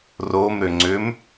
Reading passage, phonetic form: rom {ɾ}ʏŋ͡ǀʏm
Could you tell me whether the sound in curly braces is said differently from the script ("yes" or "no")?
no